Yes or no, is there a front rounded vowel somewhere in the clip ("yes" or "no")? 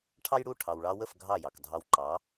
no